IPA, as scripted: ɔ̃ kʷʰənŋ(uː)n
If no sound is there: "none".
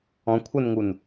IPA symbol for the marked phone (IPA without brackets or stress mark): u